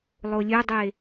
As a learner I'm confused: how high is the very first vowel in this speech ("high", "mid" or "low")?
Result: mid